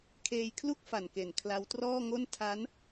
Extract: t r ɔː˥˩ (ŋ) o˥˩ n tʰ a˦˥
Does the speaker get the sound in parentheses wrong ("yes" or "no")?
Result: no